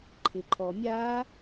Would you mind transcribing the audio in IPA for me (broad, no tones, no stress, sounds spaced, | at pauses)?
ǃʰ ɪ ǃʰ ɔ mʲ a